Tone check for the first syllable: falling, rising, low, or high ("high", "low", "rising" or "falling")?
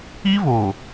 high